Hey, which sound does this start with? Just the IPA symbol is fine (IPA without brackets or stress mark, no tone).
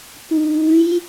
p